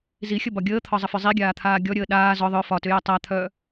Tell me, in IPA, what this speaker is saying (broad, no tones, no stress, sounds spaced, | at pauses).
z i xʲ ə b ɒ ɡʲ əː t̪ʰ ɒ zˤ ə f ʏ zˤ i ɡʲ aː t̪ʰ aː ɡʲ ɔ ɾʲ əː ɗ aː z ɔ ðˤ œ f ɒ t ʏ j ɛ tˤ a t̪ʰ œ